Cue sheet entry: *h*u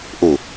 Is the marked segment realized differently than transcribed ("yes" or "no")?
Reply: yes